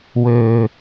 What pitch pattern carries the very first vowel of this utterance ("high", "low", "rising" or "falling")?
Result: low